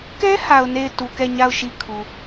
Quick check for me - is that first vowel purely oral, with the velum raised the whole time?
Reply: yes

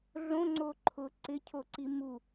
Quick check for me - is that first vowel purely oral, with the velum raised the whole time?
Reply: no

